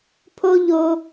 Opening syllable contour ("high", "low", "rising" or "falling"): high